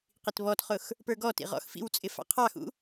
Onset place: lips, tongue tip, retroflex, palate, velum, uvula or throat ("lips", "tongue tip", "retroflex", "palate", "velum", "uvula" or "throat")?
uvula